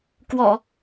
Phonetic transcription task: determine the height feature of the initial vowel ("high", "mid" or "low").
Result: mid